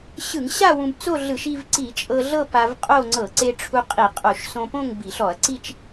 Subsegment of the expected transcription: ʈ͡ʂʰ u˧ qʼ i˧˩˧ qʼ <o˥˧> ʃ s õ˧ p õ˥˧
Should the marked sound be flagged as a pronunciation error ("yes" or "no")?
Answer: yes